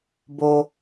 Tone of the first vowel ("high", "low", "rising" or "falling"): low